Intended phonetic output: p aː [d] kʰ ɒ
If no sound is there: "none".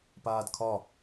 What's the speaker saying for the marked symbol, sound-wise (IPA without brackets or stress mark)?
d